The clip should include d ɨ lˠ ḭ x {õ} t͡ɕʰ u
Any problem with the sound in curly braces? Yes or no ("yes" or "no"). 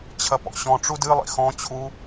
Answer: yes